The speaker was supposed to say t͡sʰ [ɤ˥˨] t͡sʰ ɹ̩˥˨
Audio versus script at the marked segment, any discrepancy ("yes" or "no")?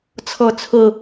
no